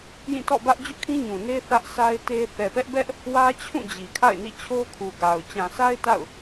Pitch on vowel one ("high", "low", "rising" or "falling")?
falling